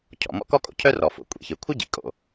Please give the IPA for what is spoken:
cʰ ɔ̰˩ m ɔ̰˥ k ɔ˥ kʼ o̰˩ cʰ œ˥ r ɔ˩ f o̰˩ kʷʼ ḭ˩ ç ɨ˩ kʷʰ ɨ˥ ɟ ḭ˩ kʼ o̰˩

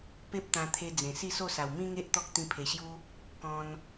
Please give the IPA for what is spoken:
p e˦ p̚ t̪ ã˧ t̪ʰ e˧ d͡z ẽ˨˩ s i˥˧ s o˥˧ s a˨˩ w m ĩ˦ ŋ e˦ ʔ t̪ ɔ˦ k̚ t̪ ĩ˧ pʰ e˨˩ ɕ j u˦ | k ɔ̃˧ n

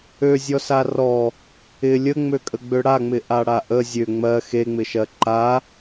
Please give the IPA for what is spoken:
ø zʲ ɔ s a r ɔ | ɪ lʲ ə ŋ͡m ø kʼ ə ɡ͡b ø ɽ a ŋ͡m ɪ ʔ a ɽ a ʔ ə zʲ ø ŋ͡m ɜ x e ŋ͡m ɪ ʃ ɜ ǃ a

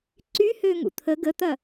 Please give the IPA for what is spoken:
ǀ y h ø ŋ ṵ t̪ʰ ə ɡ ə t̪ ɐ

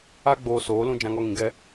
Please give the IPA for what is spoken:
a˦ ɡ͡b oː˧ s oː˨˦ l ũ˦ d͡ʒ ã˧ ŋ ɔ˧ ŋ ĩ˨ ɡ ɛ˧

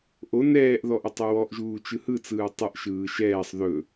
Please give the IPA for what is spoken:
ʔ o n ɛː ʔ ð ɔ ʔ ə tˤ o w ɔ ʔ ʒ uː t͡ʃ ɯ h ɯ t͡s ɯː tˤ ə ʔ ʃ ɯː ʃ ɛː sˤ ð ɵ

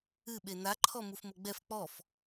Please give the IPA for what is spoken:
ɨ ɓ e n a ǃʰ ɔ m u f m o ɡ͡b ɛ f k͡p ɔ f

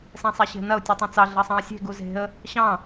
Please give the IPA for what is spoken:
s ɛ̃ sˤ ɛ ɕ e̤ n ɐ ʊ̯ tʲ u tˤ ɑ̃ t͡s ɑ ɮ ɐ sˤ ɑ̃ ə̯ sʲ e̤ ɡ u z e̤ ə̯ | ɕ ɑ̃

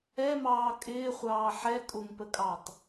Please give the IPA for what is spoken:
ɛ m ɑː kʼ ɪː χʷ ɑː ħ ɛ kʼ ʊ ŋ p ə kʼ ɑ tˤ

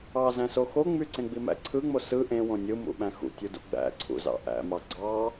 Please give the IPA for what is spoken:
ɑ z æ̃ s o x o ŋ͡m y ǀ ẽ ɡ͡b i m æ̰ ǀʰ ɯ ŋ͡m o s ɯ ʔ ẽ w õ nʲ ɯ m ṵ ɓ æ̃ x ṵ tʲ u d ṵ ɡ͡b æ̰ ǀʰ ṵ z ɑ̰ ʔ æ̰ m ɑ ɡ͡ǀ ɑ

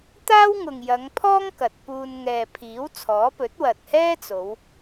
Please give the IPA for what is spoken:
t̪ aː˥ w ŋ ʊ˨ ŋ j ɐ˨˧ ŋ pʰ ɔː˥ ŋ k ɐ˨ t̚ p uː˧ n ŋ ɛː˨ pʰ iː˨˥ w t͡sʰ ɔː˨˥ p ɵ˨˥ t̚ w ɐ˨ t̚ h ɛː˥ t͡s o˨˧ w

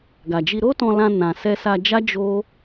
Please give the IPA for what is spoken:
ɡ a˨ d͡ʒ i˧ ɾ o˦ t ɔ̃˧ l ã˧ n ã˨ s ɛ˧ s a˧ d͡ʒ a˦ d͡ʒ o˦

